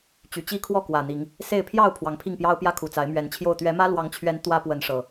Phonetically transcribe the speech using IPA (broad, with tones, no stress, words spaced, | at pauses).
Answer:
t͡ɕy˨˩t͡ɕi˦ kʰwɔ˥˨kwä˨˩n̪i˨˦ŋ | se˥˨ɪ̯ pʰjɑ˥˨ʊ̯ pʰwɑ˨˦ŋpʰi˥˨ŋ pjɑ˦ʊ̯pjä˦ kʰu˨˩t͡sa˨˦ɪ̯mɥɛ˨˦nt͡ɕʰjo˥˨ʊ̯ t̪ɥɛ˨˦mä˦lwɑ˨˦ŋt͡ɕʰɥɛ˨˦n t̪wä˦pwə˨˦nʂɤ˨˩